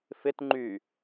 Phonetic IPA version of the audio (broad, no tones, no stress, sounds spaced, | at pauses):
f ɪ t ŋ͡ǃ y